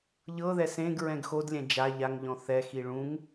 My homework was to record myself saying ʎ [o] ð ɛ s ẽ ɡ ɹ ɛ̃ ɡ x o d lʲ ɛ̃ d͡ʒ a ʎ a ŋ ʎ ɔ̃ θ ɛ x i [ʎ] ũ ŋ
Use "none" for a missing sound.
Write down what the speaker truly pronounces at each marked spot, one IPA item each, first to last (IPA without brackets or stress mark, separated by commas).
ɤ, ɭ